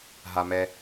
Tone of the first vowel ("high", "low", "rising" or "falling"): low